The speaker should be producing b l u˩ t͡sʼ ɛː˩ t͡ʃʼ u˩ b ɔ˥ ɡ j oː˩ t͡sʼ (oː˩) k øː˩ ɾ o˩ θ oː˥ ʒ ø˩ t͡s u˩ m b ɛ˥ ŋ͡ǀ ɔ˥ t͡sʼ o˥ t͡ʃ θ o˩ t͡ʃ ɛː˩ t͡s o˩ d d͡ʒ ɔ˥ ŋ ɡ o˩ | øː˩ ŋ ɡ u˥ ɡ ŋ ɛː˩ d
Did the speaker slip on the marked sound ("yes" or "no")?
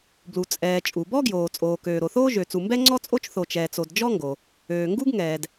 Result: no